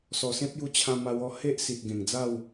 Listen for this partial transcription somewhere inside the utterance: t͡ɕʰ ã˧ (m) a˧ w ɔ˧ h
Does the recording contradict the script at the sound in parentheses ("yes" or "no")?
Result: no